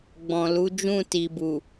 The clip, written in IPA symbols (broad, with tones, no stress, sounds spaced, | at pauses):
ɡ͡b ɔ̃˨ l u˨˦ d͡ʒ ũ˦˨ t i˨ b u˨